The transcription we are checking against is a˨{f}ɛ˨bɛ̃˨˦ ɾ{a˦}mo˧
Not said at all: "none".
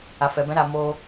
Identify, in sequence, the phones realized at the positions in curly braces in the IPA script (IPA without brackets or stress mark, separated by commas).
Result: f, a˦˨